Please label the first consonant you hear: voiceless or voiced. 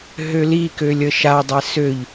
voiced